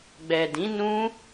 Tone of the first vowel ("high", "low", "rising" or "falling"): low